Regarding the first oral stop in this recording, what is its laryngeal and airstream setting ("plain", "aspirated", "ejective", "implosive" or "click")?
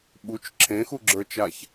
implosive